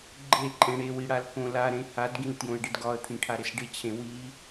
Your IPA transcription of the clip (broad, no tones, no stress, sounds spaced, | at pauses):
ɡ͡ǃ e ǃʼ ẽ ɽ e w i ɽ a l k õ l a ɾ ẽ h a d ɡ ĩ l t j õ ə̯ ɖ ɪ d ɡ ɒ ə̯ t̪ʰ ĩ ʈʰ a ɾ ɪ s ɖ ɪ t͡ɕʰ ẽ w i